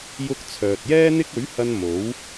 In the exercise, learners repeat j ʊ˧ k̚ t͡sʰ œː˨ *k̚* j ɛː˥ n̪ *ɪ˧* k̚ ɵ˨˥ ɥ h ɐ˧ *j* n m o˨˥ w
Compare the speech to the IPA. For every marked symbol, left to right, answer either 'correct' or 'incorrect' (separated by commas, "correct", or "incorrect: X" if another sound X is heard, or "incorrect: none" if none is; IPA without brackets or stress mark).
incorrect: t̚, incorrect: ɪ˥, incorrect: none